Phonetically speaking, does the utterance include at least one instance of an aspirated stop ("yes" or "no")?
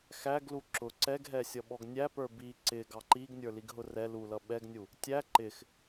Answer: no